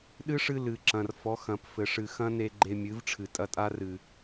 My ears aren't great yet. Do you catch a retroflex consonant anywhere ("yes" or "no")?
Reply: yes